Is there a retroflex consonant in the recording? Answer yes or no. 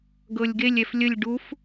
yes